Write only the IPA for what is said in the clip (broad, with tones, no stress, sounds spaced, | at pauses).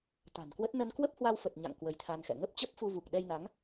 t̪ a̤˨˩ n k w ə˦˥ t̚ n ə˧ n k w ə˦˥ p̚ h w a˧ w f ə˨˩ t̚ ɲ a̰˧˨ ŋ k w ə˧ j t̪ʰ a˧ n x ɛ̰˧˨ ŋ ə˦˥ p̚ t͡ɕ ə˦˥ p̚ f u˧ v u˨˩ k̚ ɗ ɛ˧ j n a˨˦ ŋ